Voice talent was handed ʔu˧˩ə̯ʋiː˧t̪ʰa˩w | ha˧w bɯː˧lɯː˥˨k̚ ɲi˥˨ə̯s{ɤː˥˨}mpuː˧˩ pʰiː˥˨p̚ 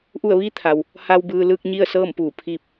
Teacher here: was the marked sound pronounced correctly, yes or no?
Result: yes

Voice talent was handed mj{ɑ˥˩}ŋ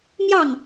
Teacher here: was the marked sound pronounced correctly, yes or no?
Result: yes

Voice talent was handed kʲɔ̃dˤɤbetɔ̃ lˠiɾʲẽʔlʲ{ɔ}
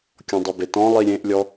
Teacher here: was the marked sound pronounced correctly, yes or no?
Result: yes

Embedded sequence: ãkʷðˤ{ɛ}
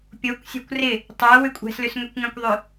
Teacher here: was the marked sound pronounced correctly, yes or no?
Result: no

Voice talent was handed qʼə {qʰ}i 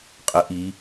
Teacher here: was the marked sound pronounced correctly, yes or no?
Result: no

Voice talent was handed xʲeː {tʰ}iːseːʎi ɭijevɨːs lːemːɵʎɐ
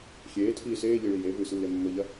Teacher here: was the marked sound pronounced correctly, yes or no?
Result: yes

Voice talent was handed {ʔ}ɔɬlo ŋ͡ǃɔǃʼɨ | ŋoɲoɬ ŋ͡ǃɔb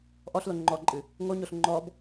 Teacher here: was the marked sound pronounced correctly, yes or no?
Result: yes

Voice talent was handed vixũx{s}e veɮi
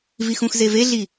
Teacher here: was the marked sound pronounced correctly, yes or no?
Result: no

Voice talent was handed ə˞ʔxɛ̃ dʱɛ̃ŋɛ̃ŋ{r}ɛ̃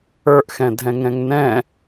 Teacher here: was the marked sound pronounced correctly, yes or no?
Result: no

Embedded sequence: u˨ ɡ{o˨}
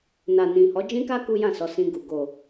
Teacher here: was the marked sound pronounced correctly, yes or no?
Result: yes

